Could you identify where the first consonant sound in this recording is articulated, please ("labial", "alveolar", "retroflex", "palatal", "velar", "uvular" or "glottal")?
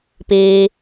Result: labial